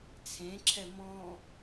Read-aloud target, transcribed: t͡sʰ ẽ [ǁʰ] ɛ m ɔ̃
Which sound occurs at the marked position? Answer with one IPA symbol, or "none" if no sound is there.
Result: ǁʰ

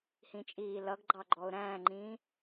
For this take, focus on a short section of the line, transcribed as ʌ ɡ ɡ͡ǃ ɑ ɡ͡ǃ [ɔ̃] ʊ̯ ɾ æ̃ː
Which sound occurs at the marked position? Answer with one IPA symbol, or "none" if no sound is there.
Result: ɔ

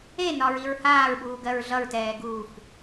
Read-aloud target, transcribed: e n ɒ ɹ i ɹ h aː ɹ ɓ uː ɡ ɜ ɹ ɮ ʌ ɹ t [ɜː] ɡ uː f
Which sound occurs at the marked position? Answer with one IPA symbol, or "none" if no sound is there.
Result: ɛː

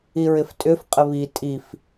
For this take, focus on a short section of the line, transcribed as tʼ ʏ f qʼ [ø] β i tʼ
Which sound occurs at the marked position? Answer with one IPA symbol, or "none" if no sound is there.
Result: ə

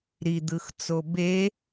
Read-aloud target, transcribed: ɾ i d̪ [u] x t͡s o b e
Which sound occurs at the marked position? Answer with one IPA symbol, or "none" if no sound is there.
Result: ɯ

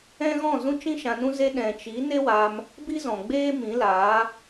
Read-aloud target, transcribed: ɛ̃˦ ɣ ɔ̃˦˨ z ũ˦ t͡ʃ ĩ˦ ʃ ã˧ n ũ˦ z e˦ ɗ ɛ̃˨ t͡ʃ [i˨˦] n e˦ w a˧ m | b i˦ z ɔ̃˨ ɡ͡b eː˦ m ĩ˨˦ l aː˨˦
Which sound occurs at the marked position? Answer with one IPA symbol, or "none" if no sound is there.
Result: i˨˦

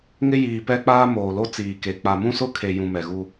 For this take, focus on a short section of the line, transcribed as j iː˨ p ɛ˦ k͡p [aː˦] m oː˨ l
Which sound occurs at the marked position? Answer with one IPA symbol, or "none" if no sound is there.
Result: aː˦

